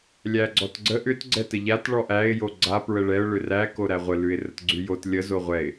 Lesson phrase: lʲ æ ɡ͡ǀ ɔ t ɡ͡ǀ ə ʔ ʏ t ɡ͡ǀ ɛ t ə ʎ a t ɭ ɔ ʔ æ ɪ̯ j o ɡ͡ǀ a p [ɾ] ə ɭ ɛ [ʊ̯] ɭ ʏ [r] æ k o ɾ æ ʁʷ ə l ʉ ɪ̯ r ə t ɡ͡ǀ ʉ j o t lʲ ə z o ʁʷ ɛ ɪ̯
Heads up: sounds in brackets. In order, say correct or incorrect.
incorrect: ɹ, correct, correct

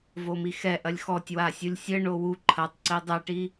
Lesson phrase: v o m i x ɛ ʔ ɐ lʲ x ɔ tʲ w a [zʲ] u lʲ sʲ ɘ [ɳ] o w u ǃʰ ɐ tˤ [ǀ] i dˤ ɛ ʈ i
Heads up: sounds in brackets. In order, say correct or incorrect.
incorrect: sʲ, correct, correct

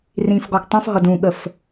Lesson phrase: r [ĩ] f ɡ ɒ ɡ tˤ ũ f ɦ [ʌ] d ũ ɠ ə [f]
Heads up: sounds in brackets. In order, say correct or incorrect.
correct, correct, correct

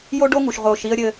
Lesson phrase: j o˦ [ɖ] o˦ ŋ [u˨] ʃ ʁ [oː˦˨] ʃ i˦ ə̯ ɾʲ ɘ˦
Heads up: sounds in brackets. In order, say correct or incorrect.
correct, correct, incorrect: oː˨

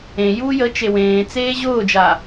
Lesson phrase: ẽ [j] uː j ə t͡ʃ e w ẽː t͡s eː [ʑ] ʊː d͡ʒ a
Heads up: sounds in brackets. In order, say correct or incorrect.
correct, correct

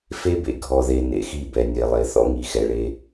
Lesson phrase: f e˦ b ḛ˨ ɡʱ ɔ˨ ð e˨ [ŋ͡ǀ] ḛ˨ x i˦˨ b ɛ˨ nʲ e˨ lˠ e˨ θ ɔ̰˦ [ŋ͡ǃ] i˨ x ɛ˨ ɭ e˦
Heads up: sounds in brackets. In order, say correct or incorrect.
incorrect: n, incorrect: ŋ

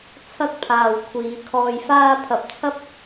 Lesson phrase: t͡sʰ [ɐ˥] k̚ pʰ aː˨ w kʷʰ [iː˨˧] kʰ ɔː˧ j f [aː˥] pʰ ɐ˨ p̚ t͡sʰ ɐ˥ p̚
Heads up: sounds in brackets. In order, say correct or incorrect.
correct, correct, correct

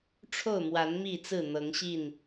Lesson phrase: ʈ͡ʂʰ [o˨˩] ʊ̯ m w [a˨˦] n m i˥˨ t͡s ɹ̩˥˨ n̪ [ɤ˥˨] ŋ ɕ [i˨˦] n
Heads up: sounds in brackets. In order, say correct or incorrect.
incorrect: o˥˨, correct, incorrect: ɤ˨˦, incorrect: i˥˨

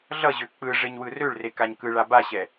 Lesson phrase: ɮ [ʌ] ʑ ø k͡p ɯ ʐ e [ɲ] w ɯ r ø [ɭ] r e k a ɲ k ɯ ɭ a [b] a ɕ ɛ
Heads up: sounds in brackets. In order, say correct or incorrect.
correct, correct, correct, correct

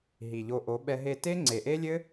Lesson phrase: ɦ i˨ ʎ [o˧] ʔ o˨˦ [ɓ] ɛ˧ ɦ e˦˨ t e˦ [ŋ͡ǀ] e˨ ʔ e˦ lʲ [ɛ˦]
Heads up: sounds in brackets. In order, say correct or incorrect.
correct, correct, correct, incorrect: ɘ˦

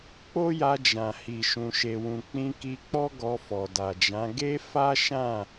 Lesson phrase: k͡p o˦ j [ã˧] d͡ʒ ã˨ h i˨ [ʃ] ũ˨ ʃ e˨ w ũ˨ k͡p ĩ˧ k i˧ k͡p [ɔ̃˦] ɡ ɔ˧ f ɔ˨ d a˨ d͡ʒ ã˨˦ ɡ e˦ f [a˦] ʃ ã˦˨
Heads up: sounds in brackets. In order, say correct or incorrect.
incorrect: a˧, correct, incorrect: ɔ˦, correct

